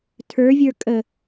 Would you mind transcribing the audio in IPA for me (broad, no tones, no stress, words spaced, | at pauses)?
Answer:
tʰə˞vʲə˞ kʼə